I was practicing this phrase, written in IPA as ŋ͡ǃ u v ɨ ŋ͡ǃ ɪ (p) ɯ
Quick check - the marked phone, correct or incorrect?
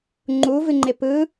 correct